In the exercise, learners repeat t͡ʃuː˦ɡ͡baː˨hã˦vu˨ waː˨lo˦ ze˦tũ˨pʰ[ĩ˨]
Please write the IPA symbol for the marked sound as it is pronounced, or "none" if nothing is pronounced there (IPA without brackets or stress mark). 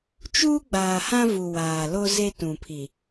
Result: i˨